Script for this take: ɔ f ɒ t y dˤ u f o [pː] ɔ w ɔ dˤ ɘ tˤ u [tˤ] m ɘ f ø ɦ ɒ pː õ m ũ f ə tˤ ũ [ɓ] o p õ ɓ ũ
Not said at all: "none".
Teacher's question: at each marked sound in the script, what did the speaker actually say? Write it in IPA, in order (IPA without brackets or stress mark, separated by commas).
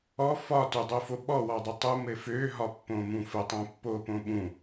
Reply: ɓ, none, pː